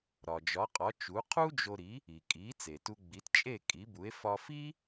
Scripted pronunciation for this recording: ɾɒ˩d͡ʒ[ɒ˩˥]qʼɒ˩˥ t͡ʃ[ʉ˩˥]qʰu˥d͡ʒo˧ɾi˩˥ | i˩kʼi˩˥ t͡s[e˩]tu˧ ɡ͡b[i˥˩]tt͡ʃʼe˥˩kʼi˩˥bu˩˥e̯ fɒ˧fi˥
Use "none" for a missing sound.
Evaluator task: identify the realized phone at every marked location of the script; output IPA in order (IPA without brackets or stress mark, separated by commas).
ɒ˩˥, u˩˥, e˩, i˩˥